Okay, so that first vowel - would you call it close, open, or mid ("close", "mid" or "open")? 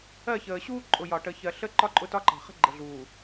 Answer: mid